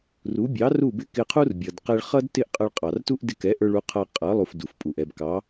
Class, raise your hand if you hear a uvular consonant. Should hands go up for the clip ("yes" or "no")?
yes